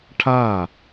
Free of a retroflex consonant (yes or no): no